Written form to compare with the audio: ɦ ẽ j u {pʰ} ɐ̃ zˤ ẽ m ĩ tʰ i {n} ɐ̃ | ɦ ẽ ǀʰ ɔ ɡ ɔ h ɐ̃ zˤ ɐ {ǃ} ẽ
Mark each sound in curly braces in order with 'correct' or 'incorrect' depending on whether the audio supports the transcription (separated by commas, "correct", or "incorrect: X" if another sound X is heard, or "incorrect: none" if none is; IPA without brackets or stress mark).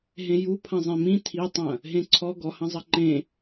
correct, incorrect: tˤ, correct